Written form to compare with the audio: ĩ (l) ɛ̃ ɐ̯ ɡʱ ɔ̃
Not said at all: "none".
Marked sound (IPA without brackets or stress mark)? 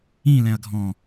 l